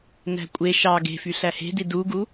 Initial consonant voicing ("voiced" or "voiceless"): voiced